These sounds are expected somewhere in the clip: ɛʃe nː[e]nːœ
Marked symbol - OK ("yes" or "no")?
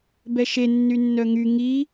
no